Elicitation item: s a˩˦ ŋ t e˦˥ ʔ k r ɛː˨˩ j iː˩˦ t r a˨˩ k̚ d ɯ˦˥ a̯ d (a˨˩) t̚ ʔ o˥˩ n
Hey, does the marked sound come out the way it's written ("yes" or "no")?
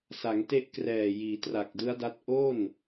no